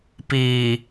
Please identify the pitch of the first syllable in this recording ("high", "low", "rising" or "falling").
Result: low